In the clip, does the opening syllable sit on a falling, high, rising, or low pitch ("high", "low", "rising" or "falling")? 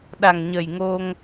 low